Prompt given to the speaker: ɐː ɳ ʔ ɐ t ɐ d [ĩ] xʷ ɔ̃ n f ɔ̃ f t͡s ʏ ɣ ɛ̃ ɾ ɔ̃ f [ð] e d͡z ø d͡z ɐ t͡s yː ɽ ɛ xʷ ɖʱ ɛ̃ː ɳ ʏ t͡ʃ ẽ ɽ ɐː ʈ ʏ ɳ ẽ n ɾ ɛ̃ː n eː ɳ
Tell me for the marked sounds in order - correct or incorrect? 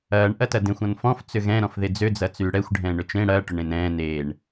incorrect: ẽ, correct

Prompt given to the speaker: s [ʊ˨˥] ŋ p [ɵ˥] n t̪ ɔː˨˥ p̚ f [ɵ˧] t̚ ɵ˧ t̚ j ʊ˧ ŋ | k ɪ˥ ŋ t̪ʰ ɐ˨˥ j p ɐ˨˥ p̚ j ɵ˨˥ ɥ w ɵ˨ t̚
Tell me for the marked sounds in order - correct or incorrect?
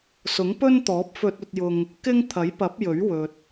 correct, correct, correct

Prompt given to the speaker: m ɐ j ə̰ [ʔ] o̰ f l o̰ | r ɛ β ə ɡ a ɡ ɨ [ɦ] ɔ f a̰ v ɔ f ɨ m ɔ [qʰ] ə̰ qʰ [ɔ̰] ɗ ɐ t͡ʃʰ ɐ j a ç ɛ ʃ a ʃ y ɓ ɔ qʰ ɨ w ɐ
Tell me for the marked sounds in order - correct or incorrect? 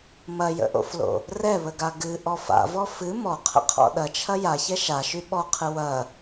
correct, incorrect: ʔ, correct, correct

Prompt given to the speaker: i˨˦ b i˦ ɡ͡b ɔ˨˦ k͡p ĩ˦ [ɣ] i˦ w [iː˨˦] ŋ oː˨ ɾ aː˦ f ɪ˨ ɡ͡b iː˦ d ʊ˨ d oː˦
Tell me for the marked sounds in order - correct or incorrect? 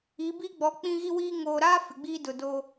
correct, incorrect: iː˦

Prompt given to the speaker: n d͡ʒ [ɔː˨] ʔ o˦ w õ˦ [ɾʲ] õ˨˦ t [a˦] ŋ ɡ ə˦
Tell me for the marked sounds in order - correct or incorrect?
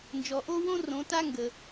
incorrect: ɔ˨, incorrect: r, correct

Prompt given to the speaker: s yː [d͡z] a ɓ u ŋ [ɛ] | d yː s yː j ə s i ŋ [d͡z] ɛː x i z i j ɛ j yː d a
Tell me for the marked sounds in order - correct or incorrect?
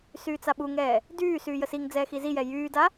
incorrect: t͡s, incorrect: ɛː, correct

